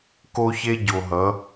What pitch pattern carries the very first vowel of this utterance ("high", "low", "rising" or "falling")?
high